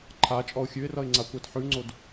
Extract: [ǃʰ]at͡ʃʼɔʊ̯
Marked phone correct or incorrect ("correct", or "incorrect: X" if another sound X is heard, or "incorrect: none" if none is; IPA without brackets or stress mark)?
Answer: correct